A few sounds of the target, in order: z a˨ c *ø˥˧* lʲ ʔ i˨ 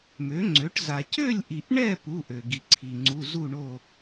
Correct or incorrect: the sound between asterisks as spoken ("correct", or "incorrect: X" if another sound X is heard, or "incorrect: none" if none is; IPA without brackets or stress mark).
correct